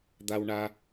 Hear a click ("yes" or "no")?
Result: no